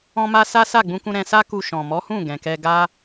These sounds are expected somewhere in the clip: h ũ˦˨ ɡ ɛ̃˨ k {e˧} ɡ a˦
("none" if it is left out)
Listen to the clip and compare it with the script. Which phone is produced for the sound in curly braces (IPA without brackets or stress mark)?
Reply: ɛ˧